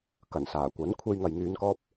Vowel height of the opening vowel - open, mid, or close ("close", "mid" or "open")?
open